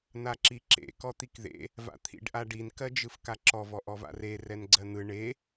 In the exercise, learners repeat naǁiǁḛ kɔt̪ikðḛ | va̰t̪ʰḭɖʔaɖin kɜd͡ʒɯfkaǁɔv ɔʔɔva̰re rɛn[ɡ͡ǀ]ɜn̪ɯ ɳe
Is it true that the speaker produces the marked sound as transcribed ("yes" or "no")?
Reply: yes